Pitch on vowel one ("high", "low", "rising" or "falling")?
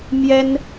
high